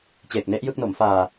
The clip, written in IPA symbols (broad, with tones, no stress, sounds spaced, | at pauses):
t͡ɕ eː˨˩ k̚ n e˦˥ ʔ j ɯ˥˩ k̚ n o˩˦ m f aː˧